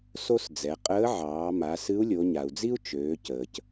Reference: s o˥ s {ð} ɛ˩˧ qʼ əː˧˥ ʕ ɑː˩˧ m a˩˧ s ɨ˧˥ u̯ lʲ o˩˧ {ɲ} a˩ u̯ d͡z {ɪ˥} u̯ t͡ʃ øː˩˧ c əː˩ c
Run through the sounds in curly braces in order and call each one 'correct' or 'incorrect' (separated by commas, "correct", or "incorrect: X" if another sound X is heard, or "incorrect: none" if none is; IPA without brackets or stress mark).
incorrect: d͡z, correct, incorrect: i˥